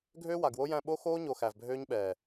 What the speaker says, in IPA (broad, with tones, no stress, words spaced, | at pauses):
ɡʱøː˦wa˨ɡwo˦jæ̃˦˨ ɓo˦xoː˦ɲo˨ xæ˨vbʱøː˦ɲɓɛː˨